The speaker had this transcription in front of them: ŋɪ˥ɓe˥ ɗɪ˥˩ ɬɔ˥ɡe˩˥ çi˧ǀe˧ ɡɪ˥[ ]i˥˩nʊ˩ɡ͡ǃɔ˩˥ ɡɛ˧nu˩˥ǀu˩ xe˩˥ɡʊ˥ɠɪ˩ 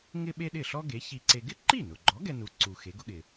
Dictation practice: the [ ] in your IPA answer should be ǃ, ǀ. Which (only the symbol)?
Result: ǃ